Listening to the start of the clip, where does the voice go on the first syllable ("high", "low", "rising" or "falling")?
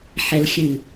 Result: high